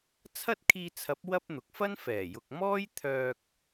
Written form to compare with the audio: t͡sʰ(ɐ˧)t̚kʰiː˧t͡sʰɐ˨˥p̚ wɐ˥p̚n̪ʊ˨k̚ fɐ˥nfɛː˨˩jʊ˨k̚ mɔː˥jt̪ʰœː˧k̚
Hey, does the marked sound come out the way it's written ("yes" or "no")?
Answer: no